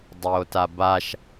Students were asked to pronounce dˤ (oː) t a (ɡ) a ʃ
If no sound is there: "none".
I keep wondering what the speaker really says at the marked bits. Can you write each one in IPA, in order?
oː, b

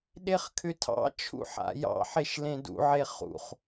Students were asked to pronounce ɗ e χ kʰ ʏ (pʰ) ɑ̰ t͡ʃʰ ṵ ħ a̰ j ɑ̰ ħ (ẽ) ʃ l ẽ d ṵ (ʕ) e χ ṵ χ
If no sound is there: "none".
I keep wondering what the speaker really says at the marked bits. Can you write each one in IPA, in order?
tʰ, e, ʕ

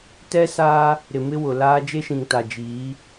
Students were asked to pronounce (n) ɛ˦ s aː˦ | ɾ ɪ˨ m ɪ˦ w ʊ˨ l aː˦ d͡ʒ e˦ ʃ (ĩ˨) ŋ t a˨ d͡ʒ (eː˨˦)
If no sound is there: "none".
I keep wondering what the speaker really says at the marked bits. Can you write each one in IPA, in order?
t, ĩ˨, iː˨˦

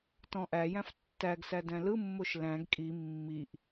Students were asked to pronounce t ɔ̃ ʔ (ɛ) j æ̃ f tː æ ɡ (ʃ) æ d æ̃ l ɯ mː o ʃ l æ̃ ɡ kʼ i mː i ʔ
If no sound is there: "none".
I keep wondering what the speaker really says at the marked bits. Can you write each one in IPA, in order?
æ, s

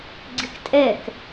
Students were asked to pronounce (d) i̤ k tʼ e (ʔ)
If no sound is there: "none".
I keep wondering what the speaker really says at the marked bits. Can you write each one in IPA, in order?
ɡ͡ǀ, k

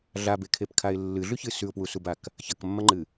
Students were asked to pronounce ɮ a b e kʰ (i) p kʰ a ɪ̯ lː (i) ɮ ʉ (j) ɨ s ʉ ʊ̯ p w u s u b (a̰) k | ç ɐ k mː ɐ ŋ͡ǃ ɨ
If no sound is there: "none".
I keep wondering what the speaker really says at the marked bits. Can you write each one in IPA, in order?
e, ɨ, ç, a

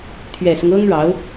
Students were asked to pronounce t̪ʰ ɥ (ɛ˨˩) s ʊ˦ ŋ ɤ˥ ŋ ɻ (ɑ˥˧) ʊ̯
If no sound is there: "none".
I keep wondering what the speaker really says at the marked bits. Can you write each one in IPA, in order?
ɛ˨˩, ɑ˧˥

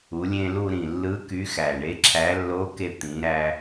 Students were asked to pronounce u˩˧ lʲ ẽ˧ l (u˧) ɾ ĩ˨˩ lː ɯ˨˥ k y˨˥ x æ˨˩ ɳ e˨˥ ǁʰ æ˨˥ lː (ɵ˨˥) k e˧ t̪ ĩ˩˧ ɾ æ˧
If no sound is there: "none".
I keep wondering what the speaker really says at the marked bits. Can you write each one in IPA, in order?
u˧, o˨˥

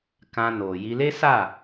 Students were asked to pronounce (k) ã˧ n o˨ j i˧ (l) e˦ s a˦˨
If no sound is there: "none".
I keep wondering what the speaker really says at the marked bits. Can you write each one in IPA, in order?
k, l

